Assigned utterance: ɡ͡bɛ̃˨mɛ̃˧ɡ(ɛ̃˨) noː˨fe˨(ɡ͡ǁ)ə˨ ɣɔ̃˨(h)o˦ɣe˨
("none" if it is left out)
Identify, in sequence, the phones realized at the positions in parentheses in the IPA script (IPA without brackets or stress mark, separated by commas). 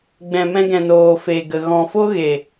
ɛ̃˨, ɡ, f